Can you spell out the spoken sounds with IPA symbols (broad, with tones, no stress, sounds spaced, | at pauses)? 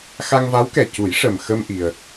x a˧ ŋ v a˧˥ w k ɛ˨˩ c u˨˩˦ j ʂ ə˨˩ m x ə˧ m ʔ i˧ ə̯